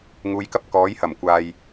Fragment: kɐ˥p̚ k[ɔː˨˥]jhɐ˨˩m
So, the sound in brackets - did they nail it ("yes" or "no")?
yes